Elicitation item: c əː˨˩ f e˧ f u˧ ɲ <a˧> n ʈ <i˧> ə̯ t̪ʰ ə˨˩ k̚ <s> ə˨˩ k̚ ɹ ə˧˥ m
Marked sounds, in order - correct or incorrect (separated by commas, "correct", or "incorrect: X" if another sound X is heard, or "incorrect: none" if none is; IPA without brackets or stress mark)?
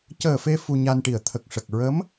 correct, incorrect: i˨˩, incorrect: ʂ